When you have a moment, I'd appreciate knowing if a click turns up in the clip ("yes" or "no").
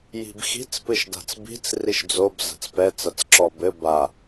yes